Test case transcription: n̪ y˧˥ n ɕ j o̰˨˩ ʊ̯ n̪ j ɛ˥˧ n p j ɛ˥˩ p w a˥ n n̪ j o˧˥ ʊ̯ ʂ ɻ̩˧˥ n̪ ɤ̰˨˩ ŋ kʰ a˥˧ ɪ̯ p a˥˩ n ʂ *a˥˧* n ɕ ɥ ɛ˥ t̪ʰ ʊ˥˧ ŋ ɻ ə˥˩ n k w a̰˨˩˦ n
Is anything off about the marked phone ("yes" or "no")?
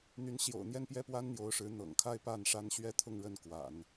yes